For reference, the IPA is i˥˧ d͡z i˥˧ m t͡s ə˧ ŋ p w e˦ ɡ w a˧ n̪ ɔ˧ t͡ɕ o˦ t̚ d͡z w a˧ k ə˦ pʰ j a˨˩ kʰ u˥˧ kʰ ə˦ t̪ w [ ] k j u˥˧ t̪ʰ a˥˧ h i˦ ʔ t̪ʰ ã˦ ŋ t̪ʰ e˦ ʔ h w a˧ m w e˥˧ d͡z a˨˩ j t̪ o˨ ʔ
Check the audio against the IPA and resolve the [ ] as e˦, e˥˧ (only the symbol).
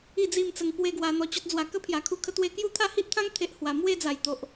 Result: e˥˧